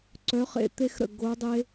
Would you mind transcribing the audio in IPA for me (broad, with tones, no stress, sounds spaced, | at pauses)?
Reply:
ǀ œ˨˥ χ ḛ˧˩ t̪ e˦ x ɾ ə̰˧˩ ɡ o˨˥ dˤ e˦